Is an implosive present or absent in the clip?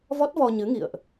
absent